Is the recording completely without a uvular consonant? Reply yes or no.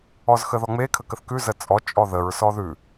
yes